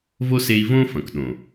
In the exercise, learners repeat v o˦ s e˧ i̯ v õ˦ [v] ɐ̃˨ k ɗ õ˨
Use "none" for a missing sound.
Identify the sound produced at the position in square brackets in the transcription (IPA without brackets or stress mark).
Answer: f